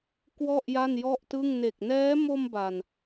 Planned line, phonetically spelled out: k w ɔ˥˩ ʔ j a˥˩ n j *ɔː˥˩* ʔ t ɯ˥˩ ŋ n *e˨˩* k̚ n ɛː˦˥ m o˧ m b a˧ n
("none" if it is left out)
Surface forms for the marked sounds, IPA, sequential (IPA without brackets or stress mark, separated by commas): ɔ˥˩, e˨˩